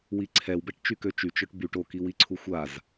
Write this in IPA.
wiǀʰɛwbɛʈ t͡ʃykøt͡ʃy t͡ʃœʈbyʈ okiwiǀʰu xʷaz

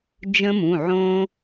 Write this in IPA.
d͡ʒə̃˦˥mũ˩˧˩ ʕõ˧

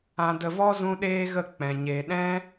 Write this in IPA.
ã˧də˧vɔ˦ zũ˦ ɗeː˦ ɣə˦˨ k͡pɛ̃˧ɲe˦ ɗɛ̃˦

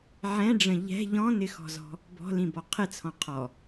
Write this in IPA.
ʕɛ̃ɖ͡ʐə̃ ʎɛ̤ ʎɔ̃nɪxɔ̤zɔ̤ | bɔ̤lĩbɔ qʰɪt͡sʰɔ̃ qʰɔ

